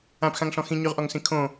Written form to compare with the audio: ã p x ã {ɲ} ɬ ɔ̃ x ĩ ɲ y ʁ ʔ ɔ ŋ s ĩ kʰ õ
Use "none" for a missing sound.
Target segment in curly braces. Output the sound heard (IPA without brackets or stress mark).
ŋ